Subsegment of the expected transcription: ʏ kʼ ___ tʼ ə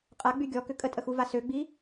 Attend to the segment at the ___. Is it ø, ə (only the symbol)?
ə